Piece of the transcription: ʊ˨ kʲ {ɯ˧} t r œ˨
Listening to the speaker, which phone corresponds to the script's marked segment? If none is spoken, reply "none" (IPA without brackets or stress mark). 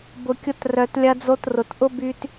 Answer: ʊ˧